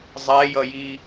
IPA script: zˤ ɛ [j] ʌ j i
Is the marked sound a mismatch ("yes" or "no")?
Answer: no